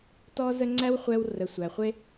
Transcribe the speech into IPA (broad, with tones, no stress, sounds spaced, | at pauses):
t ɔ˦ z ə˦ ŋ͡ǀ æ˦ w χʷ ɛ˧ w r ə˨ sʷ æ˨ χʷ e˦